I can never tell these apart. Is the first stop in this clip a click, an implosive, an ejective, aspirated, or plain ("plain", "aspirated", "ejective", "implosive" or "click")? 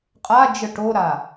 ejective